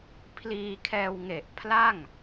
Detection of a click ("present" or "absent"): absent